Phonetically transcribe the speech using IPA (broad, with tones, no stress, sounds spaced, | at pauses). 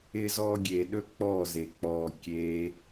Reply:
ɪ˧ z ɔː˧ ɡʲ eː˨ ɗ ɵ˦ k͡p ɔː˦˨ z eː˨ k͡p ɔː˧ kʲ eː˦